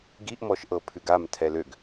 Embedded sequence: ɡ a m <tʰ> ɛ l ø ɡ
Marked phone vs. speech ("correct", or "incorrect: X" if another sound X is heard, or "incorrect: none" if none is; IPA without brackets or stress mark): correct